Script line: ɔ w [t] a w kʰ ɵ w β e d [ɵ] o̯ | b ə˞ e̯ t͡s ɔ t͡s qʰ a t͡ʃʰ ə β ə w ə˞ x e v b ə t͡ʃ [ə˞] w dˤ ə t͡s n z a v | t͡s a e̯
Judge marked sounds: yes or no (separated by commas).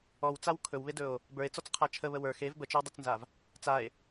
no, yes, no